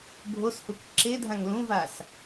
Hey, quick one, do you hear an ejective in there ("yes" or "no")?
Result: no